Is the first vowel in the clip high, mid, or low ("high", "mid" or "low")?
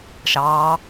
low